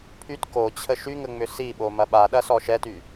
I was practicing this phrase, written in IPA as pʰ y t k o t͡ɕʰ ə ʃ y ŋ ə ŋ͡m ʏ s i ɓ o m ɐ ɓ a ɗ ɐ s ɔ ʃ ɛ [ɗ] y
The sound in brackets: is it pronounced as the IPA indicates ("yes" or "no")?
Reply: no